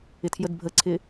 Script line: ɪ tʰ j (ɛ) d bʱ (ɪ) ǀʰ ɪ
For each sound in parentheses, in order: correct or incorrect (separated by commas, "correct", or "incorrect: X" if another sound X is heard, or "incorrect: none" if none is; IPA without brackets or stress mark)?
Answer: incorrect: ə, incorrect: ə